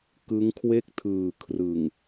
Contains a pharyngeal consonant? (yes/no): no